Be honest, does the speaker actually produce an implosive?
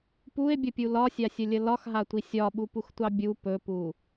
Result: yes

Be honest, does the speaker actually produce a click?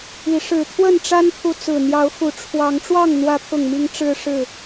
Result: no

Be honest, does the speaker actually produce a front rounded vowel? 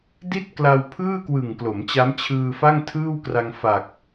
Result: no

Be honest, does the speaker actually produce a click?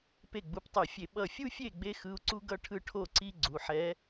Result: yes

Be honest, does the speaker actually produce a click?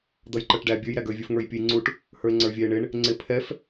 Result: yes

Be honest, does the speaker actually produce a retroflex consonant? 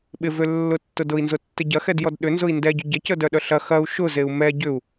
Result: no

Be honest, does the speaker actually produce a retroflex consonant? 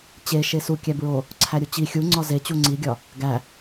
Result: no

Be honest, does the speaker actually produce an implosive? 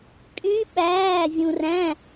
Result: yes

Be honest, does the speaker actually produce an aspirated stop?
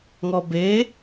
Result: no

